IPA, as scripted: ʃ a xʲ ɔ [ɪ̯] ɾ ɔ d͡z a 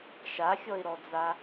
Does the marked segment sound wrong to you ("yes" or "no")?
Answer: no